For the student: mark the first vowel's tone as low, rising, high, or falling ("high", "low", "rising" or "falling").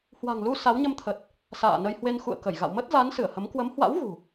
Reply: low